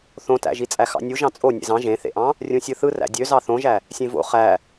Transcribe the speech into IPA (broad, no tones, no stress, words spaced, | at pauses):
θõtæ̰ʒit͡sʼæ xɑ̰nʲu ʒɑ̃t͡sʼo nʲḛzɑ̃ ʒẽθḛʔɑ̃ | rʲũsʲɯθɯ ræ̰dʲøzɑ θõʒæ | sʲẽvo̰ χæ